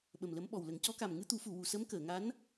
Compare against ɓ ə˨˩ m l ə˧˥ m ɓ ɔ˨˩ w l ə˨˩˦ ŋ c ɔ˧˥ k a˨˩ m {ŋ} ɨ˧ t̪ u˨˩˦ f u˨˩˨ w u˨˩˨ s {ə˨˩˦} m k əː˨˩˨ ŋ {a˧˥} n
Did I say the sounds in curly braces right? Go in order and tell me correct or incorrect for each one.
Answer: correct, incorrect: ə˧˥, correct

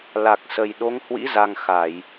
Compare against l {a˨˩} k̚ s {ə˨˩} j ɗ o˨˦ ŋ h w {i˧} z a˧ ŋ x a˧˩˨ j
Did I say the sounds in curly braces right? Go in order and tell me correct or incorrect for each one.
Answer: correct, correct, incorrect: ḭ˧˥

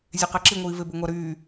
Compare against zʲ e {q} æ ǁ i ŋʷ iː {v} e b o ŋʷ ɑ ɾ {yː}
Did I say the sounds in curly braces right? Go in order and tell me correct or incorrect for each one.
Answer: correct, correct, correct

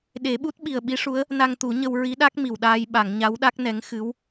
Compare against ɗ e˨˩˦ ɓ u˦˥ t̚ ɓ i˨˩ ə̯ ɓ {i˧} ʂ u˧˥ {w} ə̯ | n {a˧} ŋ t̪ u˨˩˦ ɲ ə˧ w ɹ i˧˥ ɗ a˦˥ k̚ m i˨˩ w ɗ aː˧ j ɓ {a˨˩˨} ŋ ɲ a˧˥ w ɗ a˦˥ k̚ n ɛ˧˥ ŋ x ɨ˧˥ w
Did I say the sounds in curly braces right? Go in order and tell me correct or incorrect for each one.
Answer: incorrect: i˧˥, incorrect: none, correct, correct

